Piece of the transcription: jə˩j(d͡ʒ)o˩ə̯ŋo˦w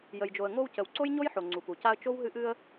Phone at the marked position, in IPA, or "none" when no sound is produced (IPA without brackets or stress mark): d͡ʒ